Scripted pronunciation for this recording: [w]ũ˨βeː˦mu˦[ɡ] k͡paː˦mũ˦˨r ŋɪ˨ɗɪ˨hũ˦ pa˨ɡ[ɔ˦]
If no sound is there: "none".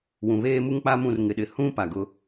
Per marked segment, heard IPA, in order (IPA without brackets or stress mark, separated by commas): w, ŋ, ʊ˦